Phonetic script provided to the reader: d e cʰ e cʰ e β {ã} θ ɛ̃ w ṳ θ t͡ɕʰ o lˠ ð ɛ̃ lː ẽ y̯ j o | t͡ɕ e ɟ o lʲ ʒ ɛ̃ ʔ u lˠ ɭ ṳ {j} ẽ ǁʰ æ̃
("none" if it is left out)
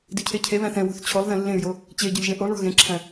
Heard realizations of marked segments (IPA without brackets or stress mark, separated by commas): æ̃, ɣ